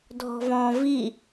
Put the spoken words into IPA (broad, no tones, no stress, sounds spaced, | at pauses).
dʱ ɔ̤ v ɔ̃ v i